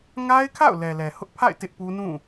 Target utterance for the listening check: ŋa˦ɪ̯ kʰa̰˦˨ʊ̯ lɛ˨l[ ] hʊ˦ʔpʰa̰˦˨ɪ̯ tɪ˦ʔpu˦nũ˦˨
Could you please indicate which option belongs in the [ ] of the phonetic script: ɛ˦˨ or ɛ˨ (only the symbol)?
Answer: ɛ˨